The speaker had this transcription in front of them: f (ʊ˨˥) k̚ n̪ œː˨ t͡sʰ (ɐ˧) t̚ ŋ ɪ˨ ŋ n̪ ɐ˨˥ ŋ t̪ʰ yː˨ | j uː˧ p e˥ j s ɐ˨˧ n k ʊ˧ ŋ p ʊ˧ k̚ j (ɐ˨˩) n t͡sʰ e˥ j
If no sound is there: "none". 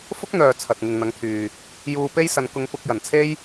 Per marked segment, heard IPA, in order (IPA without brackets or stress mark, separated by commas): ʊ˥, ɐ˨, ɐ˨˩